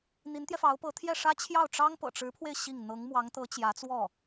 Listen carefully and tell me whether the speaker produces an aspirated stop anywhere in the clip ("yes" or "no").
yes